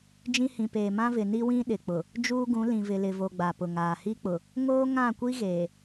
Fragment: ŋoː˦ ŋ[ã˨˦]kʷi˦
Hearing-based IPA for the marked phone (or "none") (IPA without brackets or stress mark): ã˦˨